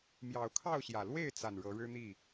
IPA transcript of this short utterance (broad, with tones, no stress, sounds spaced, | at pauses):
m j ɑ˨˩ ʊ̯ kʰ ɑ˥˨ ʊ̯ ɕ j ä˨˩ l w e˥˨ ɪ̯ t͡s a˨˩ n ɻ ɤ˨˦ ɻ ɻ̩˦ n̪ i˥˨